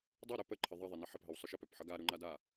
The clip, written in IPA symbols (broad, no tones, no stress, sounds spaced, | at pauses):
dˤ o ɾ œ p ə ǃʰ ə ðˤ ʌ ðˤ e n ə ħ ə p ɦ ə w sˤ œ ʃ ə p œ p ħ ʌ ɡ a ɾ u ŋ͡ǃ a d a